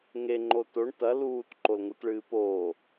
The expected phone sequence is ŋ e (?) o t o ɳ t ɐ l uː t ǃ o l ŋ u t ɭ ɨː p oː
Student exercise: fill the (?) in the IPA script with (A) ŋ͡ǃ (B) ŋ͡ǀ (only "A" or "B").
A